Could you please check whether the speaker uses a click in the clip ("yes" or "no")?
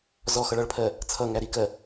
no